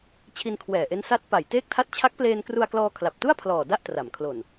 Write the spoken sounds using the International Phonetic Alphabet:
t͡ɕʰ i˧ n kʰ w ɛː˨˩ ʔ e˦˥ n s a˦˥ t̚ p a˨˩ j t eː˥˩ k̚ tʰ a˥˩ t̚ t͡ɕʰ a˦˥ k̚ p l eː˧ n k r u˧ a̯ k l ɔː˧ kʰ l a˨˩ p̚ t u˥˩ a̯ pʰ l ɔː˨˩ d a˥˩ ʔ t r a˩˦ m kʰ l o˨˩ n

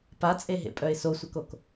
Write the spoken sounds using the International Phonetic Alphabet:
p a t͡sʼ e ɦ ḛ pʼ œ ɪ̯ s o sʷ ə k o k

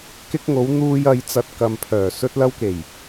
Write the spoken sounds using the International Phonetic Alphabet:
k ɪ˧ k̚ ŋ o˨˧ w n̪ uː˧ j ɐ˨˧ j t͡s ɐ˨ t̚ k ɐ˨ m pʰ œː˨˩ s ɵ˧ t̚ l ɐ˧ w k e˨˩ j

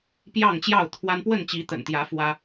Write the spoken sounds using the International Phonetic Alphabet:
p j ɑ˥˨ ŋ t͡ɕ j ɑ˥˨ ʊ̯ t̪ʰ w a˦ n p w ə˥˨ n t͡ɕ i˨˦ t̪ ə̰˨˩ n t̪ j ä˨˦ f w ä˦

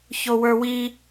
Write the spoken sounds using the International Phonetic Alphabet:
ç o w ə˞ w i

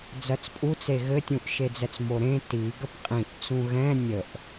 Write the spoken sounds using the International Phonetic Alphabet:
d͡z ɜ t͡s pʼ u t͡s e ɣ ɘ tʲ ũ ʔ ʃ e d͡z ɛ t͡s m o ɾ ẽ t i ɡ ə p qʼ ĩ ʔ t͡s ũ ɣ ɛ̃ nʲ ə ʔ

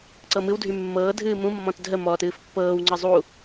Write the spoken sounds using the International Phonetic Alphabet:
ǀ ɤ m ɨ w dʱ y mː ɤː dʱ ɨː m ũ mː ɔ̃ t dʱ ə m ɔ t ɨː f pː ɤː w ŋ͡ǀ ə zˤ u

